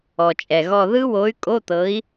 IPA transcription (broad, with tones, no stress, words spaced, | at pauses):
ɔ˩t͡ʃʼɛ˩ɣɔ˦˨ ðɯ˦˥wo˨˥y̯kʼo˧˥˧t̪ɤ˨˥i̯